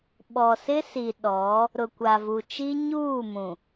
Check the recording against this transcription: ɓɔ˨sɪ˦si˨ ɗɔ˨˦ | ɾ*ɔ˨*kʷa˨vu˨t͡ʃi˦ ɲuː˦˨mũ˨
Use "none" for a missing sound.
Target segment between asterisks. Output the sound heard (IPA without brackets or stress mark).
ʊ˨